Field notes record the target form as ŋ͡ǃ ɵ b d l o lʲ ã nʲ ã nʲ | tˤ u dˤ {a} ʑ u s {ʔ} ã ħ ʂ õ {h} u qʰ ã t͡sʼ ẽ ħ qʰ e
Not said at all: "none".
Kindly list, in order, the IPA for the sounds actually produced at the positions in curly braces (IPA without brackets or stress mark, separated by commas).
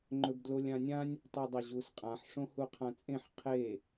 ɐ, qʼ, h